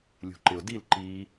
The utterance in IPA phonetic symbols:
lʲṳǃɪʊ̯dil ǃi

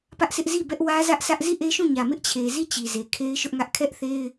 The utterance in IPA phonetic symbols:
pä˦ʔsʰɪ˦ʔ zi˦˨ bɛ˦ʔ wä˦zä˦ʔsä˦ʔ zi˦˨ʔe˦ʃũ˦˨ɲä˨ mɪ˦ʔt͡ɕʰe˨zi˦˨ t͡ɕi˨ze˨ kʰe˦ɪ̯ʃʊ˦ʔŋä˦ʔ kʰɛ˦ʔθe˦ɪ̯

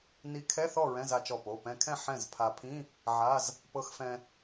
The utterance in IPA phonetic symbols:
ni˧˥kʰɛ˧˥˧θɔ˥˨ ɹɛ̃˧˥˧za˧t͡ʃɔ˧˩po˩˧˩ pɛ̃˧kʰɛ̃˥˨ ħɛ̃˥˨z pʰa˧ pʰĩ˧˥˧ | ʕa˧˥˧z | pɤ˧xfɛ̃˧

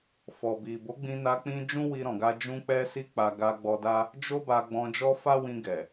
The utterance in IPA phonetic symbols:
fɔ˨bi˨ bo˨˦ɡ͡bĩ˧na˧ k͡pĩ˦ d͡ʒũ˦wi˧ɾɔ̃˨ɡa˧ d͡ʒũ˧k͡pɛ˧si˧ k͡pa˧ ɡa˧ɡ͡bɔ˧da˦ | d͡ʒo˦ba˧ɡ͡bɔ̃˧ d͡ʒɔ˦fa˦wĩ˧ ɡɛ˨

